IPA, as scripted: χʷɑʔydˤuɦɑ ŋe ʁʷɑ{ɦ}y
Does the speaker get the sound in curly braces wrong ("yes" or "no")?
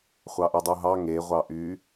yes